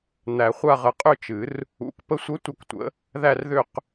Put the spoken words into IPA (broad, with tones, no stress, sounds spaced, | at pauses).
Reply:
n̪ æ˨˩˦ χʷ a˥˧ ʁ ə˧˩ qʼ ʏ˥˧ t͡ʃ ɨ˨˩˦ r | ṵ˨˩˦ k p ə˧˥ sʷ ə˧˥ tʷ ə˥˧ k tʷ ə̰˧˥ | ð æ˥˧ r ð ʏ˥˧ q